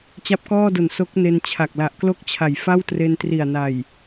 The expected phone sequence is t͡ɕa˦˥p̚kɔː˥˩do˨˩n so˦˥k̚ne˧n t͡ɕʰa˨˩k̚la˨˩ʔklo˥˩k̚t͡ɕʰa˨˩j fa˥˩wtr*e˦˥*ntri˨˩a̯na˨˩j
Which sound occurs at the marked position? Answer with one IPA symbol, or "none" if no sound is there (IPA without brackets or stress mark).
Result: e˧